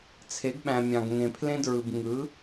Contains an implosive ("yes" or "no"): yes